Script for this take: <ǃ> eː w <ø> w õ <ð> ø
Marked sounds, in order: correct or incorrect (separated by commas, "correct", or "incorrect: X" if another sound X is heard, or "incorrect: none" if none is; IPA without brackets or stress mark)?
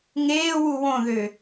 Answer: incorrect: ŋ, incorrect: u, correct